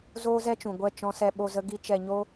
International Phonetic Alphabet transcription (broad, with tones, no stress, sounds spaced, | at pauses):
z oː˦ z ɛ˦ t͡ʃ ũ˨ ɡʷ ɛ˦˨ t͡ʃ ɔ̃˦ s ɛ˦ ɓ o˦ z ə˦ ɡ i˦ t͡ʃ ɛ˧ ɲ o˦